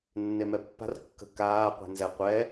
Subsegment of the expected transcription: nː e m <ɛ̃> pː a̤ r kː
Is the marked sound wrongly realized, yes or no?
yes